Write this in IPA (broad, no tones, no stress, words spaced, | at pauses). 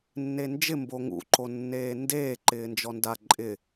nːend͡ʒɪ mboŋṵ ǃonːeːndeː ǃɪːnd͡ʒɔnda ǃʼɪ